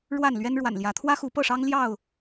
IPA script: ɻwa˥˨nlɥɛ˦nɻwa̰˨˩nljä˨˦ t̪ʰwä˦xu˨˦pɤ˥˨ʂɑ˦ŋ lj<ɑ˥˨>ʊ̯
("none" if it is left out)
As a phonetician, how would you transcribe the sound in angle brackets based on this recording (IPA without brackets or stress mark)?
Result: ɑ˥˨